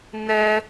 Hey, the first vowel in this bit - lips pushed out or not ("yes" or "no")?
no